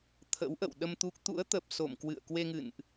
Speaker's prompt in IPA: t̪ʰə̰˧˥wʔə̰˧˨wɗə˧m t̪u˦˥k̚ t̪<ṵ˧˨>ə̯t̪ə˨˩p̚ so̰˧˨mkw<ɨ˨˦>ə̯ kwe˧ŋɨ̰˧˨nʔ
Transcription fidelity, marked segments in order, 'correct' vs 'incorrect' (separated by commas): incorrect, incorrect